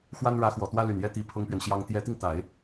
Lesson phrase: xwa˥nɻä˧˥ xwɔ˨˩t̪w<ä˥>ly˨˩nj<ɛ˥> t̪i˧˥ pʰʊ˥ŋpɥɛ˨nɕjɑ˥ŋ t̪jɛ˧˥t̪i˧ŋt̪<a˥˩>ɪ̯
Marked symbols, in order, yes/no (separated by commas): yes, yes, no